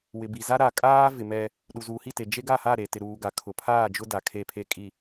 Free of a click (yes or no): yes